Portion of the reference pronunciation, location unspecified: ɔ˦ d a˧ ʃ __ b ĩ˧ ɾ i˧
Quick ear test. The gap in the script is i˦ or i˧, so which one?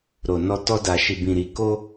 i˧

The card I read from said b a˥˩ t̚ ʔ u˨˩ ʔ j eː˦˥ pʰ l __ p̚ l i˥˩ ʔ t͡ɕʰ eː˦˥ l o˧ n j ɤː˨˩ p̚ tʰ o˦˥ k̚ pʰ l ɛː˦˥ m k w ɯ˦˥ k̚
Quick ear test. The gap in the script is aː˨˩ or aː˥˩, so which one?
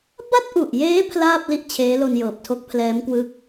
aː˥˩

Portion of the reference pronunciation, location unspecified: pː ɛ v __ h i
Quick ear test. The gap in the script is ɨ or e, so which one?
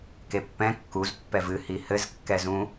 ɨ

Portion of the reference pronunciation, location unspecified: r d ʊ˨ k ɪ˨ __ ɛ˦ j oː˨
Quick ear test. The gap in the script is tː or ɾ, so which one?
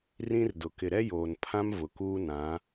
ɾ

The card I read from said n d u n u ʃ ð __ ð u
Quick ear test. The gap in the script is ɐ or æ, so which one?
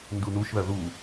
ɐ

